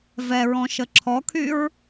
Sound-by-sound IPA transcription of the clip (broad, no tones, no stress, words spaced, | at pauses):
vɛɹɔ̃ʃə ǁʰɔkʰyɹ